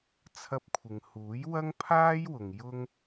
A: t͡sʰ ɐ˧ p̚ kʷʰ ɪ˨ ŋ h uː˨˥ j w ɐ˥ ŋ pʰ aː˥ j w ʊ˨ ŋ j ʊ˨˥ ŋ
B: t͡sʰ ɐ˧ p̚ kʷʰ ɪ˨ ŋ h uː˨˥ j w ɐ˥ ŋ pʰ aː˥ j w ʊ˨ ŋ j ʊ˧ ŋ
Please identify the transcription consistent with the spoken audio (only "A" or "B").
B